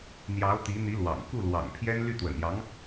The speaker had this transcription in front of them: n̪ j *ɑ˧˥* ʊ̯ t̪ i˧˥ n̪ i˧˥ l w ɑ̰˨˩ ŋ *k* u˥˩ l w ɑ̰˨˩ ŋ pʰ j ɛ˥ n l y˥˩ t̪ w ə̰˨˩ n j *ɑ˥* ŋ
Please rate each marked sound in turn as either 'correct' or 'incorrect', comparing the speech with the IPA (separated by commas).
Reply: correct, correct, incorrect